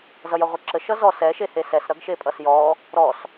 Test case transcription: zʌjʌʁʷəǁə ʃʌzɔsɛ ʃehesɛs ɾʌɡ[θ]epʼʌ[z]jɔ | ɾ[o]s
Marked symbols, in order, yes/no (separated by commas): no, no, no